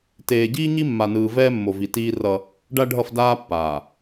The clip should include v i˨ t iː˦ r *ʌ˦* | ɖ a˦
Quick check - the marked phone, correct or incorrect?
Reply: correct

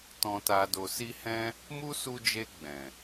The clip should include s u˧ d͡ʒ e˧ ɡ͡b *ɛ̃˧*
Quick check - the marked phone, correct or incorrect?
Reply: incorrect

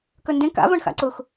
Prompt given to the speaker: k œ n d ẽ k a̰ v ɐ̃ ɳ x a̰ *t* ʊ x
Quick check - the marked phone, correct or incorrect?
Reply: incorrect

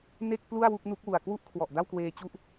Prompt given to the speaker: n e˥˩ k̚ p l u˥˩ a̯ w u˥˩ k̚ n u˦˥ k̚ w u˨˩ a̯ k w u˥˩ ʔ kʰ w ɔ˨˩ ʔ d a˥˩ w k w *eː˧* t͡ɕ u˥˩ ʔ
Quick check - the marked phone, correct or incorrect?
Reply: correct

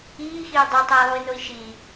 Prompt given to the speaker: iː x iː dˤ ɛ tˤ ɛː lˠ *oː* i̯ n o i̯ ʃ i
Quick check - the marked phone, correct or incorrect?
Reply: incorrect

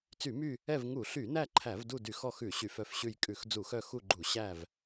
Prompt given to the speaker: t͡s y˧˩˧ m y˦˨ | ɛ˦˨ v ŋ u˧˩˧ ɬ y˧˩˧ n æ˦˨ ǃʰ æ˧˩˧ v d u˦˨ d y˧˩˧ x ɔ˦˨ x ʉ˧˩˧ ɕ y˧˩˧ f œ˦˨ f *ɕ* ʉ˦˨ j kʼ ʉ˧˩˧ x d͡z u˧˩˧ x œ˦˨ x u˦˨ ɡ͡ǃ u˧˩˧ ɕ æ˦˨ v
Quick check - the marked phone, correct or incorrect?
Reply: correct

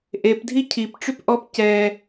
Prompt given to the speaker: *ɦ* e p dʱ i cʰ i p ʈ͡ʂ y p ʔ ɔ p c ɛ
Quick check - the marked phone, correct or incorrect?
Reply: incorrect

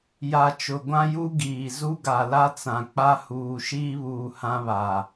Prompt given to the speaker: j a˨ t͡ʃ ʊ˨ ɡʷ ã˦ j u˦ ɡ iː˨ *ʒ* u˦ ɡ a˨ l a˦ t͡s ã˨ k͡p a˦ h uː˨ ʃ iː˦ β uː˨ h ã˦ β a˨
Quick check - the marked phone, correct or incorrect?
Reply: incorrect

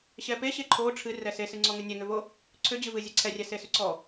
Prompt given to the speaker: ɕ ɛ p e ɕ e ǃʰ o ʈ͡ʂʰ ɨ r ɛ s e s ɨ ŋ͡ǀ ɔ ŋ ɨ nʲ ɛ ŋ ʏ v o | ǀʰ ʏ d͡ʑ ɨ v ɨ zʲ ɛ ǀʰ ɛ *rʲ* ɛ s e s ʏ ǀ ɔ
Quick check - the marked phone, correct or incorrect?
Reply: correct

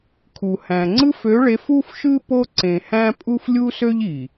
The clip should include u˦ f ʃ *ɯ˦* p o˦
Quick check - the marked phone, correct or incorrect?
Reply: correct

